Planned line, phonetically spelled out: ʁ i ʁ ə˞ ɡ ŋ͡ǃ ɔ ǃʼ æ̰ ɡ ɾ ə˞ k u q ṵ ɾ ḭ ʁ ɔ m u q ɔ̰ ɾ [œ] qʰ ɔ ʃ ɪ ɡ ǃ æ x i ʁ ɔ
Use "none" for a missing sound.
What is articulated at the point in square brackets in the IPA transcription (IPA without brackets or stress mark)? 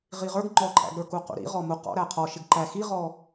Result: æ